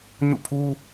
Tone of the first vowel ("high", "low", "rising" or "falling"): falling